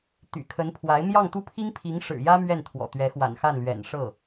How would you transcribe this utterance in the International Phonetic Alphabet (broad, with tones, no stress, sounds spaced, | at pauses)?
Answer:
t̪ y̰˨˩ kʰ ə˧˥ n pʰ w a˧˥ ɪ̯ m j ɑ˥˧ ŋ t̪ u˥˩ pʰ i˥ ŋ pʰ i˧˥ ŋ ʂ ɻ̩˨˩ j ä˥ m ɥ ɛ˥˩ n t̪ʰ w ɔ̰˨˩ t̪ ɥ ɛ˧˥ x w a̰˨˩ n x a˥˩ n l ɥ ɛ̰˨˩ n ʂ ɤ˥˩